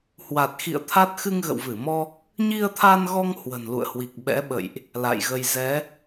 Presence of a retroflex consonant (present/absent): absent